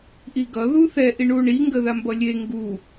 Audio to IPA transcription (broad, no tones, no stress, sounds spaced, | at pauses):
ʔ i ɡ ʌ ð u θ ɛ ʔ i ɳ u ɳ i ŋ ɡ ə ð a m b ʌ lʲ e ŋ ɡ u